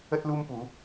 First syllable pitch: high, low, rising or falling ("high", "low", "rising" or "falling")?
high